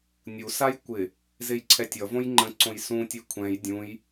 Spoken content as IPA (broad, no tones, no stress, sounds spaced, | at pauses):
nʲ u s a j kʷ ɪ | z e j ǀʰ ɛ tʲ ʌ v õ j ŋ͡ǃ ə̃ ǀ õ j s ũ tʲ e kʷʰ ɛ̃ j dʲ ũ j